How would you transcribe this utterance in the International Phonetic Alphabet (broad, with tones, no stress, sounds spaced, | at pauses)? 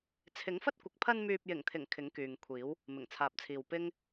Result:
t͡sʰ ɪ˨˥ ŋ f ɐ˥ t̚ kʷ ɪ˨ k̚ pʰ ɐ˧ n m yː˨ p̚ j ɪ˨˩ ŋ t̪ʰ ɪ˨˩ ŋ kʰ ɪ˨˥ ŋ k yː˨ ŋ kʷʰ iː˨˥ w | m ɪ˨˩ ŋ t͡sʰ aː˨ p̚ t͡sʰ iː˨ w p ɪ˥ ŋ